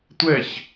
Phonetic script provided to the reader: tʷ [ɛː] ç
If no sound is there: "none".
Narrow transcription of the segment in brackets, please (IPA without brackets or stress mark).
ɛ